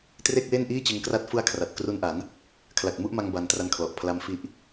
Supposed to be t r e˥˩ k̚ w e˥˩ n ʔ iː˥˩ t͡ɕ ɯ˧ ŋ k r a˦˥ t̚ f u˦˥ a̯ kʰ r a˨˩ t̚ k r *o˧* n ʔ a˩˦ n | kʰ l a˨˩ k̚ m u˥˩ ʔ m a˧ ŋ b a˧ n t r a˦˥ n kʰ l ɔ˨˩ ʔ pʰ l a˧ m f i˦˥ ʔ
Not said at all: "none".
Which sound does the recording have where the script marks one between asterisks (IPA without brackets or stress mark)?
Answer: u˧